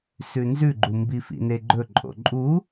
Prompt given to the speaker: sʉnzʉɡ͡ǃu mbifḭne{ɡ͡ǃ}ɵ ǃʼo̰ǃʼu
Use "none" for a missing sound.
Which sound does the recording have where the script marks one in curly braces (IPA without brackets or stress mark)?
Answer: ɡ͡ǃ